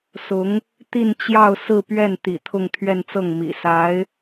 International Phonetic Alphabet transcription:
s ʊ˧˥ ŋ | t̪ i˥˧ n t͡ɕ j ɑ˥˧ ʊ̯ s ɹ̩˥˧ p ɥ ɛ˥˩ n t̪ ḭ˨˩ t̪ʰ ʊ˥˧ ŋ t̪ʰ ɥ ɛ˥˧ n t͡s ɤ˥˩ ŋ m ḭ˨˩ s a˧˥ ɪ̯

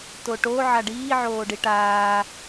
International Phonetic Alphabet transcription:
t o ʈ o ʕ a ɖ iː ʕ oː ɖ i ʈ aː

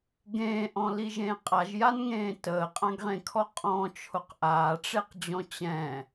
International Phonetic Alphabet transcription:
ɡ ẽː ʔ ɔ̃ l i ʒ ẽː qʼ a ʒ j a n ŋ ẽː t əː qʼ ã ɡ ʁ ẽ kʰ ɔ qʼ ɔ̃ t͡ʃʰ ʊ q ʔ aː ʈ͡ʂ e q d͡ʑ ɔ̃ t͡ɕ ɛ̃

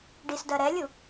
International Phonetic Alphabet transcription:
ɖ i s d ɜ ɾ ɛ lʲ u

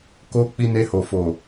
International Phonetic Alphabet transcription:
k o˦ k͡p i˧ n e˧ h o˨ f o˨

